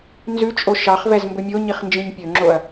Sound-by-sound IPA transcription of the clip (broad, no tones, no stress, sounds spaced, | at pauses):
n z ʉ t͡ʃʼ o ʃ ɑ χ v ɛ z m b ɵ mʲ o ɲ i χ n d͡ʒ ĩ ɲ pʲ ɵ ŋ͡ǁ o ɐ̯